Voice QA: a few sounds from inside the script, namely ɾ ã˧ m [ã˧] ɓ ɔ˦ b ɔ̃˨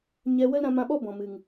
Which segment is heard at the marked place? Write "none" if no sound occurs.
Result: ã˧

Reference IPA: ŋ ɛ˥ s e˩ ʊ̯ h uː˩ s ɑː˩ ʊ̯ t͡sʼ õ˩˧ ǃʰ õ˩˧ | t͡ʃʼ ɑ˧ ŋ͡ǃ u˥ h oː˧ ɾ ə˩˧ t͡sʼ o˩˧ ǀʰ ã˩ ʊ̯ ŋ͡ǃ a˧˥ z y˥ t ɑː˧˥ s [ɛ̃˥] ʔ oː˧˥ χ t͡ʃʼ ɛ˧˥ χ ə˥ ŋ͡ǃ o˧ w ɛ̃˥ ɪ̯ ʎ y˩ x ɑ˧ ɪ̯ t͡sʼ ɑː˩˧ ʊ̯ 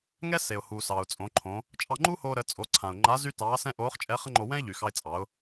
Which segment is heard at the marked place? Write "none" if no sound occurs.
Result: ɛ̃˥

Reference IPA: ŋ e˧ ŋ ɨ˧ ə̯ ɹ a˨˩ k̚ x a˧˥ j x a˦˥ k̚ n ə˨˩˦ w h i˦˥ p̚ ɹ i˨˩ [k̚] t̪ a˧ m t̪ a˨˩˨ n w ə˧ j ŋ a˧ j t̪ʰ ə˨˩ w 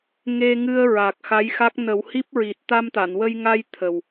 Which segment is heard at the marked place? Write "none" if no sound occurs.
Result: t̚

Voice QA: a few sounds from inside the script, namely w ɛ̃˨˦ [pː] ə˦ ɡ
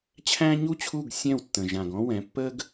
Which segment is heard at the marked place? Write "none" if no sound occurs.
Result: pː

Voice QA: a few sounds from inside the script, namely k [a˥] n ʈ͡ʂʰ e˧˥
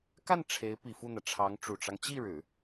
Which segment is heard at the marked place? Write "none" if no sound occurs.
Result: a˥˩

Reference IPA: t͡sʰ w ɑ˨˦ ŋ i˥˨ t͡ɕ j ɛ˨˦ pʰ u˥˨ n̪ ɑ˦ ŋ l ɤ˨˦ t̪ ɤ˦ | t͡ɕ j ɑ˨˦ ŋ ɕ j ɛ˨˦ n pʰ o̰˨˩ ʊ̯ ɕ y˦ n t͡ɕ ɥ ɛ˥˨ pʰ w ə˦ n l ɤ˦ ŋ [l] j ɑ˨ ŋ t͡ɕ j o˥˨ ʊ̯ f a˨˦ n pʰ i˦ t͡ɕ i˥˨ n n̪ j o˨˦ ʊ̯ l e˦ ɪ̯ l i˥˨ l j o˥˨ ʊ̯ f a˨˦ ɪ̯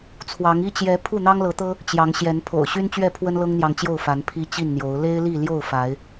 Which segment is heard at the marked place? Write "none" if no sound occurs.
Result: n̪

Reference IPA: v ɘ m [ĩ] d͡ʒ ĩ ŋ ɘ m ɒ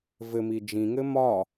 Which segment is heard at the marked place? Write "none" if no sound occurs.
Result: i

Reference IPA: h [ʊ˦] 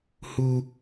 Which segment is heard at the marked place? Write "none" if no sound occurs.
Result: u˦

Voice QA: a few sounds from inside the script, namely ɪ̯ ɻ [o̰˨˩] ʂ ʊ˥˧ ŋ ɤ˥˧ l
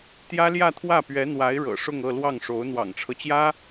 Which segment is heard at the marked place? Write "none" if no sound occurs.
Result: ɤ̰˨˩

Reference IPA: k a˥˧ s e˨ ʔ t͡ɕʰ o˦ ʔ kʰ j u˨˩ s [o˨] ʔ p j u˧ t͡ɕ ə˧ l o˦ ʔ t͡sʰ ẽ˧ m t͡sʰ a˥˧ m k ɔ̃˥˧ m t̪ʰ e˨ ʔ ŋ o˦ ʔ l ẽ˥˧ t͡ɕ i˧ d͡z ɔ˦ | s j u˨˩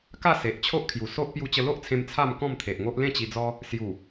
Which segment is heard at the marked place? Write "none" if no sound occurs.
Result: o˦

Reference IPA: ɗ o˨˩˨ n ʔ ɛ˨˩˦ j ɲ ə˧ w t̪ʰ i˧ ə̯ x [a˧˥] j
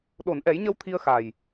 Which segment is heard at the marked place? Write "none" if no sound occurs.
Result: a˨˩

